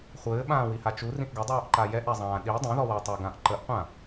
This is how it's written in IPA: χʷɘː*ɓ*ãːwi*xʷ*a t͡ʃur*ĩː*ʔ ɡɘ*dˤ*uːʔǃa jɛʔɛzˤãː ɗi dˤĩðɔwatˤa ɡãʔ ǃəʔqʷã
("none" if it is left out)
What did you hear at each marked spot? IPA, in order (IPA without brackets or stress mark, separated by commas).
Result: ɓ, h, ĩ, dˤ